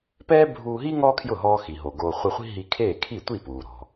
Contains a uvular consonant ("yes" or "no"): yes